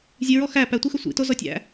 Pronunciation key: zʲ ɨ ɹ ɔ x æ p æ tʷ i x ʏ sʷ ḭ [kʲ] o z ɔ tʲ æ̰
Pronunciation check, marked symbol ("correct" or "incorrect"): incorrect